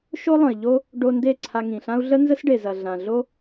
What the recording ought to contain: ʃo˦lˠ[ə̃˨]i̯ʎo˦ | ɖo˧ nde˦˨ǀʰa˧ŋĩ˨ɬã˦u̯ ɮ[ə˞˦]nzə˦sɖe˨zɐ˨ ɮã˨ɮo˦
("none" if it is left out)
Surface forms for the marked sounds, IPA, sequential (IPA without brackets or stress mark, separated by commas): ə̃˨, ə˦